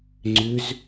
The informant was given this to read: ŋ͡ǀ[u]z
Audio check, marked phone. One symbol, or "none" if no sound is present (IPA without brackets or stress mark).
ʏ